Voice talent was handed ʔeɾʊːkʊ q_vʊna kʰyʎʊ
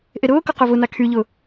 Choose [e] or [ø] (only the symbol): ø